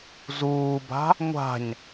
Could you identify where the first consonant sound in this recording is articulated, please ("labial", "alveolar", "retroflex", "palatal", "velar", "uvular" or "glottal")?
alveolar